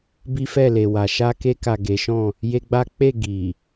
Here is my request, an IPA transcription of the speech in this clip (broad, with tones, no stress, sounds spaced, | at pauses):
b i˦ f ɛ˦˨ l e˨ w a˨ ʃ a˧ k e˧ k a˨ ɡ e˨˦ ʃ ɔ̃˦˨ | j e˦ ɡ͡b a˦ k͡p e˦˨ ɡ i˨